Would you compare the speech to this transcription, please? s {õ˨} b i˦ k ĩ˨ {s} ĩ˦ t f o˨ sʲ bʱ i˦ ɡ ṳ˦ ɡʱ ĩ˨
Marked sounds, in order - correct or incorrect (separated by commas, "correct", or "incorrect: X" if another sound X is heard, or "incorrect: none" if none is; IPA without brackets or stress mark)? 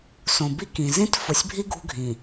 correct, incorrect: z